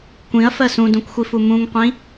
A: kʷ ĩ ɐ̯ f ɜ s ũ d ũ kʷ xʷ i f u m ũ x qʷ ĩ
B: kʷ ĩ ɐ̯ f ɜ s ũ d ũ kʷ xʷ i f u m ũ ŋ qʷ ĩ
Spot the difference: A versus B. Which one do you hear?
B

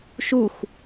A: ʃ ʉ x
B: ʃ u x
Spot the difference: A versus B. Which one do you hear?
B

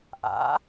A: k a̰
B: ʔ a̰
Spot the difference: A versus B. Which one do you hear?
B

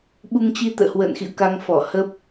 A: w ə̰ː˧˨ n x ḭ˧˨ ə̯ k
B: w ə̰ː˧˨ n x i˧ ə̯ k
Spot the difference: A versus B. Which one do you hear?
A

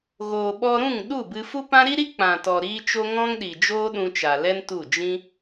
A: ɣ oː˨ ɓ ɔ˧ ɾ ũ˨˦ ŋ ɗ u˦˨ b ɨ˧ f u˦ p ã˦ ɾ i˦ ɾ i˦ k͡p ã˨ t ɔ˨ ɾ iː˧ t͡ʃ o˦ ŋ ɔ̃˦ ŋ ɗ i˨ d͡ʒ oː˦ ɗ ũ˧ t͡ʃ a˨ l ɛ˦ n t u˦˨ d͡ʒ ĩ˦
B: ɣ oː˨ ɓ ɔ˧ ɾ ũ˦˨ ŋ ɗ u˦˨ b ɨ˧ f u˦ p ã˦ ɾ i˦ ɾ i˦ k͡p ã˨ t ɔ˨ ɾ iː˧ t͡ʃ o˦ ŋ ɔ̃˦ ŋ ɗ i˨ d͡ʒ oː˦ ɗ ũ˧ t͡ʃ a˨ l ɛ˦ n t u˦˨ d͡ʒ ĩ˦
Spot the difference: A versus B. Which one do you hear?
B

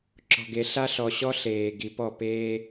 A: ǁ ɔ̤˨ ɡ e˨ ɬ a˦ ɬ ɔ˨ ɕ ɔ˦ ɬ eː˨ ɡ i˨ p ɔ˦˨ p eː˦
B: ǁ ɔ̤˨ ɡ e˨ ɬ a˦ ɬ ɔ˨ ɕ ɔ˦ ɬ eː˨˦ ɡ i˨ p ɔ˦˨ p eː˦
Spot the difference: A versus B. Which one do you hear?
A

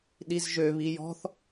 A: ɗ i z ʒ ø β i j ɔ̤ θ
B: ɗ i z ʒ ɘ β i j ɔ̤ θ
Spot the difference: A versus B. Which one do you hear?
A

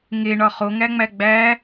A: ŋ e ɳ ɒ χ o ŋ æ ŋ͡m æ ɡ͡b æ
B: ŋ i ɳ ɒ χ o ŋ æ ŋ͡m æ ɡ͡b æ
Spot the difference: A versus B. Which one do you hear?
A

